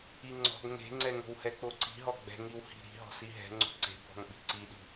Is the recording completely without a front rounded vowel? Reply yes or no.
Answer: yes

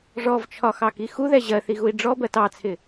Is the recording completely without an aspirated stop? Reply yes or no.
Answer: no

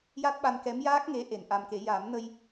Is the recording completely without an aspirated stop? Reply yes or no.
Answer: yes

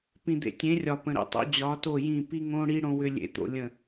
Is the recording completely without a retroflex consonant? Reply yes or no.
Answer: no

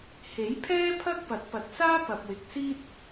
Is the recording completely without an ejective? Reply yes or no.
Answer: yes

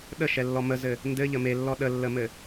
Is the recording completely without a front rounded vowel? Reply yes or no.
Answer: yes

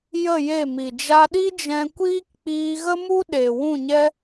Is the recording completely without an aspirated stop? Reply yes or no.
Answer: yes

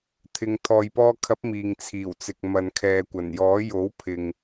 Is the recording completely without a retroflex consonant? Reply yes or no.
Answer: yes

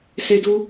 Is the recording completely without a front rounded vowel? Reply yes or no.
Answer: yes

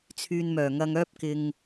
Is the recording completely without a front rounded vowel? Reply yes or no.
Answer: no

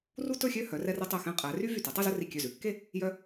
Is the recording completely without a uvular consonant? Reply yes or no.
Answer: no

